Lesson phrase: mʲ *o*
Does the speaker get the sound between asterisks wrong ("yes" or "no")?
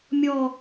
yes